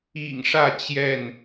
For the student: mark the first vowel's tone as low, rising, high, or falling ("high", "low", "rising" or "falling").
low